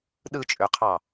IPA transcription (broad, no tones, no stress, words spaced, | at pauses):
ɗɯt͡ʃʼøqʰɑ